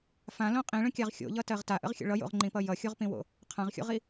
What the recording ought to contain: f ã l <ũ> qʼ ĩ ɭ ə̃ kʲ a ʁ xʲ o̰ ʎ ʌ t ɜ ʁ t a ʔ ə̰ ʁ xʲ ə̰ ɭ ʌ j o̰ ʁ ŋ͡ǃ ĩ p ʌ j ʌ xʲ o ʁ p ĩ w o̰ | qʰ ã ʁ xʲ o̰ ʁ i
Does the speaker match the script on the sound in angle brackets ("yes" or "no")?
no